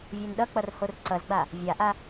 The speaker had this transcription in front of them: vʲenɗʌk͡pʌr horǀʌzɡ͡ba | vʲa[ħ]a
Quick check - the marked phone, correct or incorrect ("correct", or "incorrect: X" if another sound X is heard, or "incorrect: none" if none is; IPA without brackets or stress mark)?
incorrect: ʔ